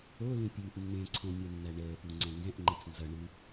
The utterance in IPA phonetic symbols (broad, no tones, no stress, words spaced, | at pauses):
olũ pʲʉːʔnːẽǀʰõ mʲɛnːæɳəːpu ŋ͡ǀɛ̃ŋɡɛ̃ʔŋ͡ǃɛt͡s nzʌɳʉ